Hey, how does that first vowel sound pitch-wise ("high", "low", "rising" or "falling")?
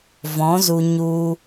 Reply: rising